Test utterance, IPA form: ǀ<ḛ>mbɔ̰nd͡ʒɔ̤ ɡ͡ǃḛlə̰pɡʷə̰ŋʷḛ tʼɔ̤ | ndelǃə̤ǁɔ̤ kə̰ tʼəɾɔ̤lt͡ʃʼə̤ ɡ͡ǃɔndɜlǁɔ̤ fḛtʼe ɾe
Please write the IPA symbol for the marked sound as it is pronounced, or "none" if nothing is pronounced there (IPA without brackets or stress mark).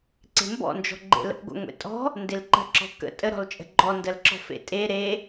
e̤